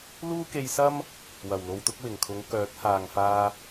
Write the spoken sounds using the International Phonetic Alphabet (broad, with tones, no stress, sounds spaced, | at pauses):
l uː˥ k e˧ j s ɐ˥ m | w ɐ˨˩ w l o˨ w t̪ ʊ˧ k̚ w ɪ˨˩ ŋ kʰ ʊ˨˧ ŋ k œː˨˥ t̚ h aː˨ ŋ f aː˧